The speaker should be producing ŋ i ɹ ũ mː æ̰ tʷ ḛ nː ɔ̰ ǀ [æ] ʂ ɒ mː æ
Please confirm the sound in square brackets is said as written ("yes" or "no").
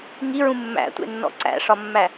no